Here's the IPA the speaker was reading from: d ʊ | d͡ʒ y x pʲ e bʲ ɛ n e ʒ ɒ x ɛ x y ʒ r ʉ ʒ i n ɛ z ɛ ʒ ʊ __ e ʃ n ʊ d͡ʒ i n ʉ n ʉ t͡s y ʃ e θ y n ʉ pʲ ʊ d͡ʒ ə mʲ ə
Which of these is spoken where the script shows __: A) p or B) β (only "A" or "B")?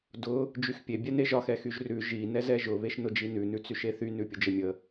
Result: B